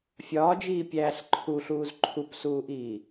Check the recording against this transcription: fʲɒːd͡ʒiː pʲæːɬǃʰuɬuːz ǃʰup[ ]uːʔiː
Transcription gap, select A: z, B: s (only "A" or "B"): B